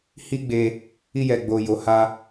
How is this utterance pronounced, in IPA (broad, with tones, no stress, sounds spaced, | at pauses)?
h i˦ ɡ͡b e˧ | i˧ j ɛ˨ ɡ͡b o˨ j o˨ h a˧